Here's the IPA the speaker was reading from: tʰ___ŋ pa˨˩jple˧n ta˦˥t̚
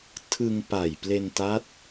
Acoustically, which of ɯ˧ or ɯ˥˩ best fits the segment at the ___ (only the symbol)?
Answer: ɯ˧